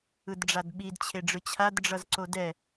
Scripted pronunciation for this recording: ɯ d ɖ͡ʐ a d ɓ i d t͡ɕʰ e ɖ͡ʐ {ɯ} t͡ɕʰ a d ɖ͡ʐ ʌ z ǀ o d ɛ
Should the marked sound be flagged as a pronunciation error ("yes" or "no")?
no